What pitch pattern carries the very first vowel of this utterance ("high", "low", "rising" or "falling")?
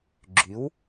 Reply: rising